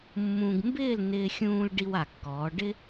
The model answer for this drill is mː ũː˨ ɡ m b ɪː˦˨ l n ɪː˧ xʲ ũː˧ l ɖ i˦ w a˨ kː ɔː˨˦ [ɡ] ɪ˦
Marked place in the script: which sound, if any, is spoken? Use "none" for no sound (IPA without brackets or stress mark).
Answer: ɖ